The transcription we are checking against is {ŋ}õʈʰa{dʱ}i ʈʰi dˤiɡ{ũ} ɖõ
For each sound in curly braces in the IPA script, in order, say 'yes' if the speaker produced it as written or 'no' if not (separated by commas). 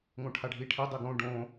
yes, no, no